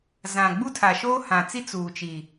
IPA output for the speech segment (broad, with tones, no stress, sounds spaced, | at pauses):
z ã˨ ɡ͡b u˦ tʰ a˨ ʃ oː˦ h ã˨ t͡s i˦ t͡s uː˨ t͡ʃ i˨